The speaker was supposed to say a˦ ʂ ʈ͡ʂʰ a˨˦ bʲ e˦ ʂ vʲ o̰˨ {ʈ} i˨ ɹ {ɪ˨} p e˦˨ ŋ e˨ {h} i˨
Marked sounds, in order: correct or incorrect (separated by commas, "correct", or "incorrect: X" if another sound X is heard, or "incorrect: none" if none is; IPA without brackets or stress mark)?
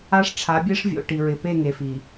correct, correct, incorrect: f